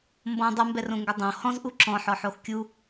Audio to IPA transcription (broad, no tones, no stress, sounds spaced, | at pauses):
m b ɔ̃ dˤ u m b ɛ r õ ŋ ɡ o dˤ õ h ɔ̃ z ʔ u ǁ ɔ̃ ħ ɔ ħ o x kʲ u